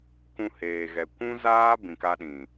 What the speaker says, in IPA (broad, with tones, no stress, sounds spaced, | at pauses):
k ũ˧ h eː˨ ɣ ɛ˨ kʷ ũ˦ z aː˦ b ĩ˨ k a˧ ɗ ĩ˨